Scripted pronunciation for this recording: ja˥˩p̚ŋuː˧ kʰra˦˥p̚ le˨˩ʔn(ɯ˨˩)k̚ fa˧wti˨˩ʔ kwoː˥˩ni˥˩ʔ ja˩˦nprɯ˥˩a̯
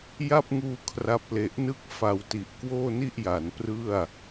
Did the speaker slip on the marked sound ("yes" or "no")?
yes